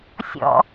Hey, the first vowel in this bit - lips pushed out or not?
yes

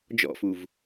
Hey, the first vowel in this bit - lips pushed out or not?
yes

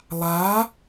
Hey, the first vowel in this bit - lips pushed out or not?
no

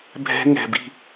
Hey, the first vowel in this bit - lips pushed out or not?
no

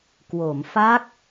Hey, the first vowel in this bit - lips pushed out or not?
yes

